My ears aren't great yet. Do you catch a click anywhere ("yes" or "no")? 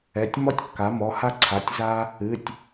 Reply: yes